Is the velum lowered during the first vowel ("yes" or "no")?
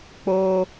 no